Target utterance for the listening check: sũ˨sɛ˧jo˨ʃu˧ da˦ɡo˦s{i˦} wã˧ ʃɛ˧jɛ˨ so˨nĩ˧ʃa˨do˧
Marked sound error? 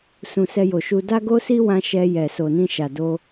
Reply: no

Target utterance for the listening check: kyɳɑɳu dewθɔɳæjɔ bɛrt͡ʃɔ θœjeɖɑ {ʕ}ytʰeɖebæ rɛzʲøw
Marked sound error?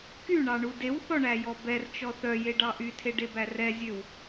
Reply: yes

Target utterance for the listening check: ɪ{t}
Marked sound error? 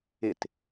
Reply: no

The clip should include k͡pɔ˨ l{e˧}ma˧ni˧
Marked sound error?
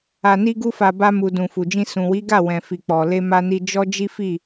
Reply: no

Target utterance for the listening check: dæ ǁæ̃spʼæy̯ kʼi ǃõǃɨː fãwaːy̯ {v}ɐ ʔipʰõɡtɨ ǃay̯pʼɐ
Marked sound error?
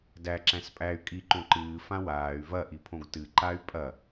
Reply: no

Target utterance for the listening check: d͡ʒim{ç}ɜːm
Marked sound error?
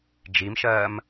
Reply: yes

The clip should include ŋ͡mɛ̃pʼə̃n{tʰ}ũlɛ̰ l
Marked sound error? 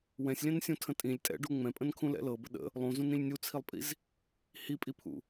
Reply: yes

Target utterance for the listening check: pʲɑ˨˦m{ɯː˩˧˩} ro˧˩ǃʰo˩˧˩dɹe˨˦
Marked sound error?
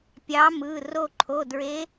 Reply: yes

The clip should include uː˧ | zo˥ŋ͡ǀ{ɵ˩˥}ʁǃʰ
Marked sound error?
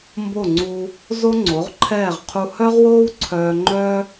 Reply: yes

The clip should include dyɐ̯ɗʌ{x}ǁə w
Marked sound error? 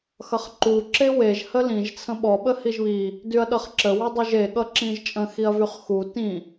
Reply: yes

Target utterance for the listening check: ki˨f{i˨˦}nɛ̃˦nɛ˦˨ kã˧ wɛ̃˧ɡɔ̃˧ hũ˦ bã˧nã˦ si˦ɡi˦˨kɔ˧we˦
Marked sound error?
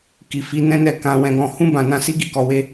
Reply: no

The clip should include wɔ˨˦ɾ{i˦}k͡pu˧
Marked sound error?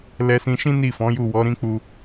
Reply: yes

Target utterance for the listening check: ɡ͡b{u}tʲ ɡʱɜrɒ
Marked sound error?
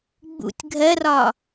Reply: yes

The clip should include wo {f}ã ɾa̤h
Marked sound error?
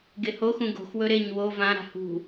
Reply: yes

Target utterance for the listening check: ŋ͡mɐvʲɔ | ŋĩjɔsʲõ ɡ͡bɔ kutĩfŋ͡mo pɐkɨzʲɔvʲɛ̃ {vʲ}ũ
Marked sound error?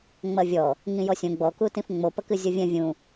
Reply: no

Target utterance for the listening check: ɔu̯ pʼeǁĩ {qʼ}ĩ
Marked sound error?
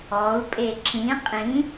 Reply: no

